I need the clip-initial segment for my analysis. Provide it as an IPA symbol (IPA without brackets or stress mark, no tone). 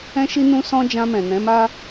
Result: ɛ̃